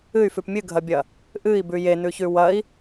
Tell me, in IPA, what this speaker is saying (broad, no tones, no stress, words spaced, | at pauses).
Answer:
ɨy̯fʉp mʲɨɡʱɐbʲɐ | ʔɨi̯bʉ jenʉçʉ wɐi̯